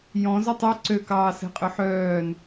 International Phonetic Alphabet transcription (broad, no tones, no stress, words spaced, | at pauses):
jɔ̃ zøtˤe ǀøkɑː sɛ̤qʼɵħœːn